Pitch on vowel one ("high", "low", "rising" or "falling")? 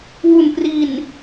low